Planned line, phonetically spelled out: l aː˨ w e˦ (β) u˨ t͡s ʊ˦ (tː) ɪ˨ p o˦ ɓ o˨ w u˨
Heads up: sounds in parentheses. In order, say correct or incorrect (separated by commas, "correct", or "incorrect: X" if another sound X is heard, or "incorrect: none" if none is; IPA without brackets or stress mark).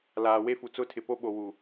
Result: incorrect: f, incorrect: tʰ